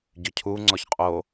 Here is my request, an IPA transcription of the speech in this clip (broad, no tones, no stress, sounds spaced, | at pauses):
ɟ ʏ cʰ u ŋ͡ǀ ɔ ç qʼ o